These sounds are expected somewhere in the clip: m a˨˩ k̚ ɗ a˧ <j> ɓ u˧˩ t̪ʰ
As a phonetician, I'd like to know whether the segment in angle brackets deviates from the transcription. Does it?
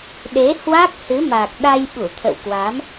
no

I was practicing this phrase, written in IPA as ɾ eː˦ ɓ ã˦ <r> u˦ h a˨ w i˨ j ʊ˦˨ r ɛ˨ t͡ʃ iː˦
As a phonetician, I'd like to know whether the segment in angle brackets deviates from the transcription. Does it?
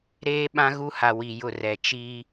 yes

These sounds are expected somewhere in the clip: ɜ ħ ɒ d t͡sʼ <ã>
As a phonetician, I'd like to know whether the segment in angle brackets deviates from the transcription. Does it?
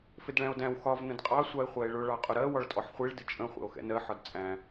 yes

